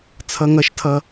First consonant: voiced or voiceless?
voiceless